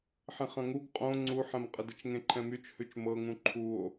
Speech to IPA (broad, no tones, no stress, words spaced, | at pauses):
ħẽχɐ̃ŋuɡ qʼõ ŋ͡ǀuħɛ̃mqʼədət͡ʃ ŋẽǃʰɛ̃myt͡ʃhʉt͡ʃ mɤŋũ ǃʰuo̯